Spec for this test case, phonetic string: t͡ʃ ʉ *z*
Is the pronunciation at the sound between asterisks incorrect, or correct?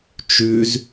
correct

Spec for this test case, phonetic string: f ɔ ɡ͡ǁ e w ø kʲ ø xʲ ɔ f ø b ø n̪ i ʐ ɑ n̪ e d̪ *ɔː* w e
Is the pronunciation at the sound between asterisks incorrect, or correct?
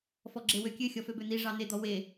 incorrect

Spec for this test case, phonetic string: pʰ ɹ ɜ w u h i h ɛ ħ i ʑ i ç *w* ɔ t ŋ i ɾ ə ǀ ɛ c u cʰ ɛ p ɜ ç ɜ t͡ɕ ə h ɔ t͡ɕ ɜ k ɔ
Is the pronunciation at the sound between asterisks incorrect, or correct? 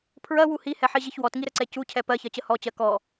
correct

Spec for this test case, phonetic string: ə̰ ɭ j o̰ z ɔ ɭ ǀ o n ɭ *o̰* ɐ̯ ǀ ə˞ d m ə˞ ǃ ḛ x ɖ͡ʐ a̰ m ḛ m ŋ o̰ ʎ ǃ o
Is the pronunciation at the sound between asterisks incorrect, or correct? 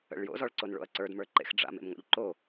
correct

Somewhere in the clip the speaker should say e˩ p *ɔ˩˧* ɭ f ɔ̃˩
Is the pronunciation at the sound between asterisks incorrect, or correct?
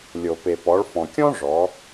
correct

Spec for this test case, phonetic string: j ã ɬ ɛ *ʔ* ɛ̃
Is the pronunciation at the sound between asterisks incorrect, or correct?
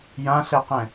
incorrect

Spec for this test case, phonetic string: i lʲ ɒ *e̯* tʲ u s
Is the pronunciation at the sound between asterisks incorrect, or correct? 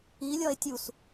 correct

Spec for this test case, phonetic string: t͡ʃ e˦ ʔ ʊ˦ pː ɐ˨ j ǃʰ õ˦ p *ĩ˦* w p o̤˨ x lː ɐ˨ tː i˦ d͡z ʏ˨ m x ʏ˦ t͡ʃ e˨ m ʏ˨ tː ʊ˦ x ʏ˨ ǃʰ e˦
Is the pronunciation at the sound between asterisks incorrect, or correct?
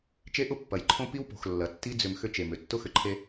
incorrect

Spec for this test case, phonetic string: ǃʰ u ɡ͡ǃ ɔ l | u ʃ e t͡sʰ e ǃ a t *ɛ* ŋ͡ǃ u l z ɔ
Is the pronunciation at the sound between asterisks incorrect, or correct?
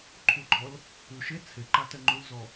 correct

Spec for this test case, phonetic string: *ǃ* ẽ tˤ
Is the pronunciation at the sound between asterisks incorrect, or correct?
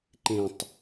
correct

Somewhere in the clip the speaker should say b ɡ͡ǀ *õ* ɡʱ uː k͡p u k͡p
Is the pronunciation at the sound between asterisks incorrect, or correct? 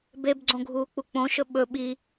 correct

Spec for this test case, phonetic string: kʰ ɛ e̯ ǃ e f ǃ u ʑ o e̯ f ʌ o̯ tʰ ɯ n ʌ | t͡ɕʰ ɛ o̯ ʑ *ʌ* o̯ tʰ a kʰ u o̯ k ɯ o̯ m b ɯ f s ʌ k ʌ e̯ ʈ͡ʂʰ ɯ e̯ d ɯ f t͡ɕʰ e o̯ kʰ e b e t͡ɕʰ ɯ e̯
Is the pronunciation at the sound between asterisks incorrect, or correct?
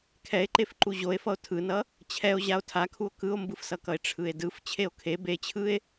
incorrect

